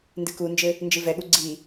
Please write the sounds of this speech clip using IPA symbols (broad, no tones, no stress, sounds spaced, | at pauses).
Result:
n d ɨ k u n d͡ʒ ɘ | n d͡ʒ ɨ v ɛ ɠ u ɡ͡ǀ i